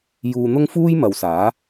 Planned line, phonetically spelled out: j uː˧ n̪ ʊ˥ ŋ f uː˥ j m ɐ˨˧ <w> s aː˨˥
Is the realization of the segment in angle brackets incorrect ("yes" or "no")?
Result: no